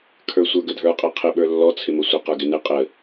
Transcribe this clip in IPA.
kʰ ə˞ sʷ ə˞ ɡ ə dʱ ə˞ qʼ ɛ qʰ ɪ ɓ ə˞ lː ɔ t͡sʰ ɪ m ə sʷ ɪ q ə˞ ɡ ɪ n ɪ qʼ ə

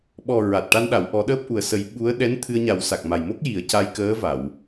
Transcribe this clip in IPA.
ɓ ɔ˨˩ ɹ a˨˩ t̚ ʈ a˧ n ɗ a˨˩˨ w ʔ ɔ˨˩˦ ɗ əː˦˥ p̚ ʔ u˨˩ ə̯ s ə˨˩˦ j ɓ u˧˥ ə̯ ɗ ɛ˧˥ n t̪ʰ ɨ˧ ə̯ ɲ a˨˩˦ w s a˨˩ k̚ m a˨˩ j m o˦˥ k̚ j i˨˩˦ ə̯ c a˧ j k əː˧˥ v a˨˩˨ w

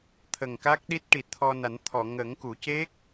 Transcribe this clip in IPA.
t̪ʰ ə˨˩ ŋ k a˦˥ k̚ ɗ i˦˥ t̚ ʈ i˨˩ t̚ t̪ʰ ɔ˧ n a˨˩˦ n t̪ʰ ɔ˨˩˨ ŋ ə˨˩˦ ŋ k u˨˩˦ c e˦˥ k̚

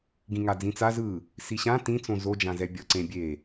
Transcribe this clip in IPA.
ɡ ĩ ŋ a d͡z ĩ t͡s a z ɯ | s i ɕ ã t ĩ t͡s õ z o d͡ʒ ã z ɛ bʲ ʌ ǀ ẽ bʲ e

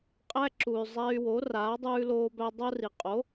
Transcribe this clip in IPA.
qʼ æ˦ ǁ u˨ y̯ zˤ æ˦ y̯ w o˨˥ r aː˨˥ dˤ ʉː˦ l oː˦ b æ˦ dˤ o˦ r i˨ qʼ o˨˥

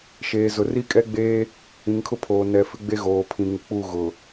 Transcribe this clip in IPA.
ʃ eː˨ z ʊ˨ r i˦ kʼ ɛ˦ ɡ͡b eː˦ | ĩ˨ ŋ kʰ ʊ˦ pʰ oː˨ n ɛ˨ f ɪ˦ ɡ͡b e˦ ɣ oː˨ pʰ ĩ˨ ŋ u˨ k͡p u˦˨ ɣ ʊ˨

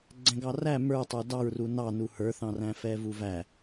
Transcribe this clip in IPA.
ɡ͡ǀ ɛ̃ ɡ ɑ r æ m ə˞ tˤ ə˞ d ɑ ɹ r u n ɑ n u h ə˞ θ ɑ̃ r æ̃ f ɛ v u v æ

